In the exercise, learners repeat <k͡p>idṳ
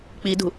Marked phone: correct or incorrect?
correct